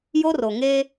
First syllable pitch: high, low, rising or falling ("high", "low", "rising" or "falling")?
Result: high